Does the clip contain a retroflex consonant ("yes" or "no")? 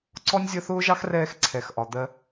no